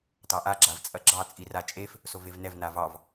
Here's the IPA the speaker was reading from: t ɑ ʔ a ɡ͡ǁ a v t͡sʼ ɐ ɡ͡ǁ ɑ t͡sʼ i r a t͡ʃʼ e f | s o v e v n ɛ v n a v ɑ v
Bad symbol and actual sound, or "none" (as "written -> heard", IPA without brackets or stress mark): none